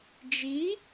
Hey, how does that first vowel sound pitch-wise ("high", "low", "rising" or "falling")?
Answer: rising